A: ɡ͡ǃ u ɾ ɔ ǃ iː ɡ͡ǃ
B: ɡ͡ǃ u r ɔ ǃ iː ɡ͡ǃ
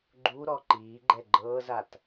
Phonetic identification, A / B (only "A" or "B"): A